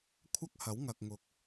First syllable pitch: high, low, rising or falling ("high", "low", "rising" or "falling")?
high